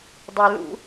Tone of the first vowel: low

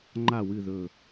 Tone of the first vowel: falling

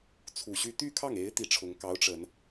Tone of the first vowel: low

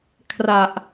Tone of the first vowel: low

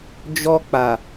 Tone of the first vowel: high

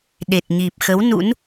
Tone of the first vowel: low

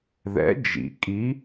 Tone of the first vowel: rising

